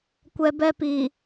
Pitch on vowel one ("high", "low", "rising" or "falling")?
high